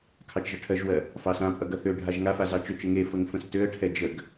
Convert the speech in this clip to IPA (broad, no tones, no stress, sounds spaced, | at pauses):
kʰ ɑ t͡ʃ ʒ ʌ ʈʰ ɜ ʒ w ɜ | f ɑ s ã pʼ ʌ ɡ ʌ θ ø ɖʱ a ʒ ŋ a f a z ɑ t͡ʃ ø t͡ʃ ə ŋ e f ə ŋ f ə̃ s t ø ə̯ ʈʰ ɛ d͡ʒ ə ɡ